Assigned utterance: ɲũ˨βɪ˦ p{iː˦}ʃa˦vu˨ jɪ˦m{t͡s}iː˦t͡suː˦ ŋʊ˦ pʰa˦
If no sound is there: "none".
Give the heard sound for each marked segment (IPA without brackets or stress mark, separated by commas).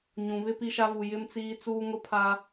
i˦, t͡s